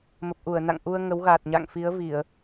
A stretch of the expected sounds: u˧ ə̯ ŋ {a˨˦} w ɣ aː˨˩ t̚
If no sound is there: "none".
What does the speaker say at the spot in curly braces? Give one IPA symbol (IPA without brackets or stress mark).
ə˨˦